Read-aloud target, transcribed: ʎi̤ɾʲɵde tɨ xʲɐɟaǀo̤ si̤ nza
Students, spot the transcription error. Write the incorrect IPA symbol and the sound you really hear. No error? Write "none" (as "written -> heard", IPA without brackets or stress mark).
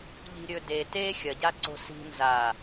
ɨ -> e